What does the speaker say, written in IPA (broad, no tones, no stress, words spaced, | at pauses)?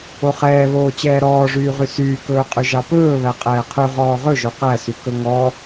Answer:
oχɛːβoː t͡ɕɛːɾɔːʐyːʁy syːkɵːqʼʉʒɑ pɵː βæqʼɛːqʰʉ ʁɔːʁɵʒo qæsy kɵŋɔ